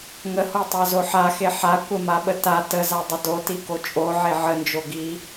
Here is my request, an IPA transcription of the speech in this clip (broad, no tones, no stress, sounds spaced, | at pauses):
ŋ ə h o tˤ a z o ħ a x e ħ a kʷ ə m a ɓ ə t a t ə z a dˤ ə d o t i k o t͡ʃʼ o ʕ e ʕ ə n d͡ʒ o ɡ i